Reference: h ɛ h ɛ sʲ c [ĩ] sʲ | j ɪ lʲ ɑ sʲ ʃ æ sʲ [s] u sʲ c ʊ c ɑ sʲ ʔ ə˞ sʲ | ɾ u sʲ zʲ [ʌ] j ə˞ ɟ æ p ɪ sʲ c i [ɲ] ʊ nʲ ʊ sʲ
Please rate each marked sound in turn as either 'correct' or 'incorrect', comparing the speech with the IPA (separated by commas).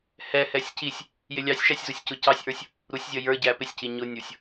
incorrect, incorrect, correct, correct